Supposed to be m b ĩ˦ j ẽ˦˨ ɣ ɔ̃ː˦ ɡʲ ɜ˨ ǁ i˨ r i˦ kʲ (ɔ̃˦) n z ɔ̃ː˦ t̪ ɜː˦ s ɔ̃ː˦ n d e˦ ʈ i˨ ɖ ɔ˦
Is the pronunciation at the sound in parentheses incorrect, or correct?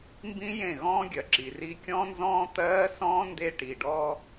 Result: correct